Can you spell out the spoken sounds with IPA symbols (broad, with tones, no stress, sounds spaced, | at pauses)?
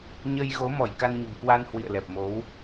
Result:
ɲ ə˧ j ɣ o˨˦ m ɔ˧˩ j k a˧ n ɲ ə̤˨˩ m k w a˧ n h w ḭ˧˨ ə̯ l ɛ˨˩ p̚ m o˨˦ w